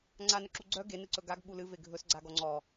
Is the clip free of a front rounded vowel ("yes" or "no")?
no